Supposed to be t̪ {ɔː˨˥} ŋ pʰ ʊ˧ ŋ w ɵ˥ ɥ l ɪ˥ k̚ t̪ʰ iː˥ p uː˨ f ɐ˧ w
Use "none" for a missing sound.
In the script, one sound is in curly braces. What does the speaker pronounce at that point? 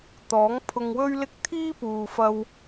ɔː˨˥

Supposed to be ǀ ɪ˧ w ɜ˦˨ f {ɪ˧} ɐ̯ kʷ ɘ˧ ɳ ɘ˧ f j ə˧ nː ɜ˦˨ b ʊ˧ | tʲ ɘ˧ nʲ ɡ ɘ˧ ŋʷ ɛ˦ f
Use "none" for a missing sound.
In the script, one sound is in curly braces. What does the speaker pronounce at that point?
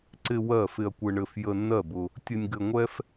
ɪ˧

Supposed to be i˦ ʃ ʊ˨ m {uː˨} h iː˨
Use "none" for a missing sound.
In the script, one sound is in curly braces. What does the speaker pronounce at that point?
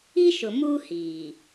uː˦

